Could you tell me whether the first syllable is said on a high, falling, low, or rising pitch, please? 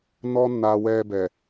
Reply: high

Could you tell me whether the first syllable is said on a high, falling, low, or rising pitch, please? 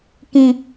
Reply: high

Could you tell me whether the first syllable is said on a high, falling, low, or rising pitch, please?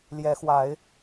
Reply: rising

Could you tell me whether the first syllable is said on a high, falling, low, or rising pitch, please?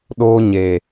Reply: high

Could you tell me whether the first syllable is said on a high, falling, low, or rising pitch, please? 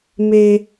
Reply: high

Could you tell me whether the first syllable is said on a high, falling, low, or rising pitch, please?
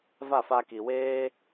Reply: falling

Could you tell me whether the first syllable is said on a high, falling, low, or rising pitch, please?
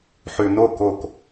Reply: low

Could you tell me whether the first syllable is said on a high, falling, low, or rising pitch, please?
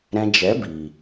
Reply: high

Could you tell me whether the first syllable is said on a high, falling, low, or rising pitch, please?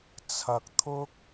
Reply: low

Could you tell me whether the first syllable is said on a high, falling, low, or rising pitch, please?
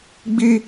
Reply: high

